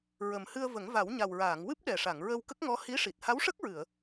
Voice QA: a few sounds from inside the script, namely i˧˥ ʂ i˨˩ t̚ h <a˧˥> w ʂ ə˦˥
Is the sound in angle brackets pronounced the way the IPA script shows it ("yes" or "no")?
yes